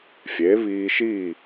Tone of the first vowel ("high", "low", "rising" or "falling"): rising